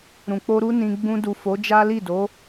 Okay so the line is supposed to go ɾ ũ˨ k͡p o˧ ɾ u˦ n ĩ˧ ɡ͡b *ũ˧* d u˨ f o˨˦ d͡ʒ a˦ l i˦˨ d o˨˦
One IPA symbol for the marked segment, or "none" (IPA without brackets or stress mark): ũ˧